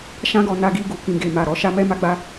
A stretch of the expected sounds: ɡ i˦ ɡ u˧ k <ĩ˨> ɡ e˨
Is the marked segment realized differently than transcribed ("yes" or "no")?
no